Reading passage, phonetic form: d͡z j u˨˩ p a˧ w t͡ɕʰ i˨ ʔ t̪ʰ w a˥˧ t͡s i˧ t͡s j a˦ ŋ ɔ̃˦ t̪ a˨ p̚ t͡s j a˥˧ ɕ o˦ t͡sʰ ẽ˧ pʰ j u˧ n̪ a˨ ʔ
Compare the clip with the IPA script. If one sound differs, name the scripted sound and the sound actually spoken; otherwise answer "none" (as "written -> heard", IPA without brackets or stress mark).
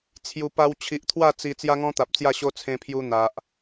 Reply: d͡z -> t͡sʰ